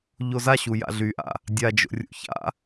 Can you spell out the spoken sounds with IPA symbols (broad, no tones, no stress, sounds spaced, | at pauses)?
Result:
ʎ o z a ɕ u j a̰ ɮ y ʔ a̰ | dʲ a d͡ʒ o̰ rʲ ṵ ç a̰